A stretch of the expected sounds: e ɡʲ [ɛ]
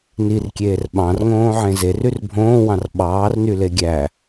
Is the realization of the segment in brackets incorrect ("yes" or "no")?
yes